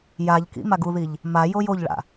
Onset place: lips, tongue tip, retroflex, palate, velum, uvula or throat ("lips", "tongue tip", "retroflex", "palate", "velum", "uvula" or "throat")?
palate